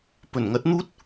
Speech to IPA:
pɵ˨˩nŋɐ˨˥t̚n̪uː˥t̚

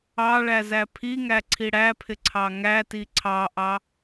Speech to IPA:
ɑ ɭæzæpʰiŋæ ǀʰiɽæpʰɪ ǀʰɑŋæti ǀʰɑʔɑ

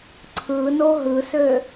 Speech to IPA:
ǀʰɯno ɦɯsø

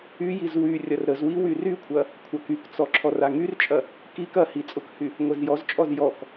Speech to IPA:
yjiz wy rʲɐrɾəzwi wyrykʷʰɐ | kʷʰakykt͡sɔ ǁʰɔraŋyrt͡ʃʼɐ | kik ɐhi t͡sʼʊkhy | ŋʷɛzjɔzt͡ʃʼɔz jɔk

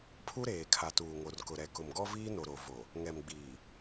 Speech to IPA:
pʰu˦ɾeː˨ kʰa˨tuː˨ŋo˨rkʊ˨ ɾɛ˨ kʊ˨mɡɔ˦viː˦no˨ ɾo˨vo˨ | ŋɛ˨mɡ͡biː˨

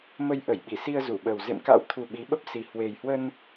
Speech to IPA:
mə˧jʔə˧˩j ɓi˧˩si˧ə̯zu˧˩ɓəː˨˩w zḛ˧˨mka̰˧˥wt̪ʰu˨˩ ɓi˨˦ ɓə˦˥p̚si˨˩ hwe˨˩jhwə˧n

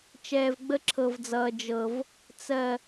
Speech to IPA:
t͡ʃɛː˨vɡ͡bə˦ǁʰɤ˨vd͡zʌː˨ d͡ʒɤ˨v | t͡sɜ˨

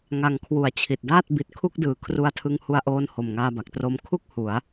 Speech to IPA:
ŋa˨˩ŋ kʰwu˩˦a̯t͡ɕʰi˨˩t̚daː˥˩t̚ bi˨˩t̚kʰu˦˥k̚dɯː˩˦ kʰru˧a̯tʰɯ˧ŋhu˧a̯ʔoː˧n ho˨˩mŋaː˧ba˨˩k̚tro˦˥m kʰu˥˩k̚ hu˩˦a̯

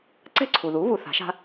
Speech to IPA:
ǀɛ̤˥ǀʰu˩ðu˩˥ βu˧θa̤˩˥ʃa̤˥

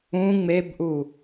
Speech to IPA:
ũ ŋ͡mebʔu

